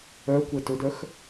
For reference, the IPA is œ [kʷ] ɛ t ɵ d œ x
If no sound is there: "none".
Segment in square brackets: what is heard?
kʷ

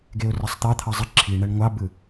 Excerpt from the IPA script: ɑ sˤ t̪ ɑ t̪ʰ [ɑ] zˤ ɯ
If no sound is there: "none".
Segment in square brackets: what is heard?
ɑ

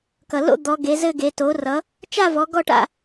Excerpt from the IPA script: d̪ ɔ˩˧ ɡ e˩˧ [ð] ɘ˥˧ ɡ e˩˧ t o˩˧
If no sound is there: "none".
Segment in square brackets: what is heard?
z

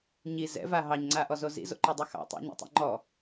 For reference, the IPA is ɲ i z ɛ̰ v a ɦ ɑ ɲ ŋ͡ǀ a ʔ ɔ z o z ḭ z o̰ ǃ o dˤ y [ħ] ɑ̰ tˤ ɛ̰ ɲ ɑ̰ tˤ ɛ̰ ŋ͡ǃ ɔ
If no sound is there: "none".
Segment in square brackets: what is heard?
x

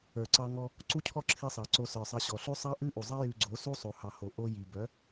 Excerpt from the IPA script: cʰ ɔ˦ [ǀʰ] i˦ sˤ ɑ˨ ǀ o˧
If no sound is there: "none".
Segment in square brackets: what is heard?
ǁʰ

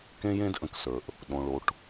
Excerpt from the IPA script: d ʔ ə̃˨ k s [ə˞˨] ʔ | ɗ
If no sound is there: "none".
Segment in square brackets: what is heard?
ə˞˨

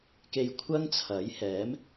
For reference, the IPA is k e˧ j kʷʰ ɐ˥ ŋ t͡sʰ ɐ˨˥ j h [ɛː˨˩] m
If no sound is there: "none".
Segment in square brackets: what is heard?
ɛː˨˥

